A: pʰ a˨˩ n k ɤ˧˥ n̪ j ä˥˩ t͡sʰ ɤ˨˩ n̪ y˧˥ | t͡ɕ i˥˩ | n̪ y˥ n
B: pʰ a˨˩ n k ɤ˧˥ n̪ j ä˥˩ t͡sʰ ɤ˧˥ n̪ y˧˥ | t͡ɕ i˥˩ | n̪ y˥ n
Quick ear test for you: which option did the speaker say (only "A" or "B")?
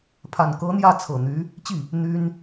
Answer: A